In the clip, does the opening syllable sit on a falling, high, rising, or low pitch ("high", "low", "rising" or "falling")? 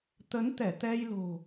rising